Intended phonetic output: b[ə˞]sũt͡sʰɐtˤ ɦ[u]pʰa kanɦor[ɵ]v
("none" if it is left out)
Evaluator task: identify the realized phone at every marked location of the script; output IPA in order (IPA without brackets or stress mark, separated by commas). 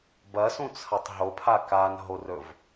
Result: ɐ, o, ɵ